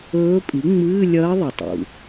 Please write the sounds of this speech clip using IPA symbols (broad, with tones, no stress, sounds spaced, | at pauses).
ɵː˧˥ pʼ i˩˥ ŋ͡m ɨː˧˥˧ lʲ ɐː˧˥ ðˤ ɨ˩ tˤ ṵ˩